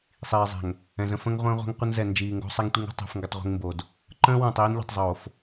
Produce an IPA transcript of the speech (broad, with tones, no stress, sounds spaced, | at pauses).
sˤ iː˨ zˤ ɛ̤˨ ŋ | ɛ̃˨ z ə̃˦ f ə̃˦ ŋ ʁʷ ə̃ː˦ ʁʷ ɛ̤˦ ŋ qʷ ə˦ n z ɛ˨ n d͡ʒ iː˨ ŋ ɡ o̤˦ sˤ ɛ˦ ŋ tʷ i˦ ŋ o̤˦ tˤ ɛ̤˦ f ŋ ɡ ə˦ tˤ ʁʷ i̤˦ ŋ m b o˨ d | ǃ ə̃ː˦ w ə̃ː˨ tˤ iː˦ n ʎ i̤˨ tˤ zˤ oː˨ f